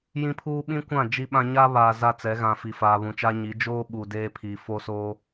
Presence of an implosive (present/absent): present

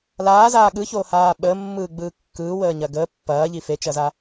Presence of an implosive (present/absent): present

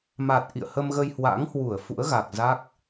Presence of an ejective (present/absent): absent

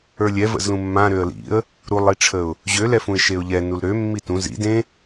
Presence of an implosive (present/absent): absent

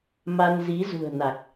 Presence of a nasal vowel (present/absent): absent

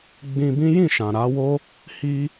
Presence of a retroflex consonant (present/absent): absent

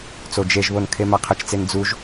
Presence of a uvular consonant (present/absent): present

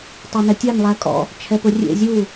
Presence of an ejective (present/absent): present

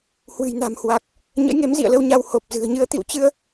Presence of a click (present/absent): absent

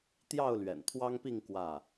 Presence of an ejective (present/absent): absent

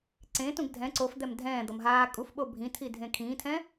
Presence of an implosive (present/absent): present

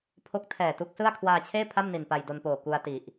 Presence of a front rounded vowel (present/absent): absent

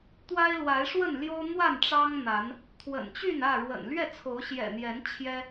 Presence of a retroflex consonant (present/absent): present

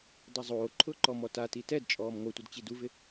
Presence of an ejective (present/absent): present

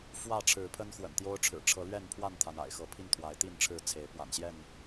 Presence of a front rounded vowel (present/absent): absent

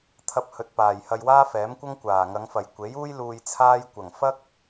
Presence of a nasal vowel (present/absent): absent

